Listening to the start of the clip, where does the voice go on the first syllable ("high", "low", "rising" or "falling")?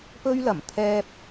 high